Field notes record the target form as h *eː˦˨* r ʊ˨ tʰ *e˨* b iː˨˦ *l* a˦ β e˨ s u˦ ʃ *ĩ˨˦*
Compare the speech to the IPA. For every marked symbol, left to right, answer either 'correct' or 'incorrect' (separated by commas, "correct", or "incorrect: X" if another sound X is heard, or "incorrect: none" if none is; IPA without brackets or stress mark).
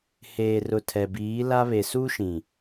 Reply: incorrect: eː˨, incorrect: ɛ˨, correct, incorrect: ĩ˨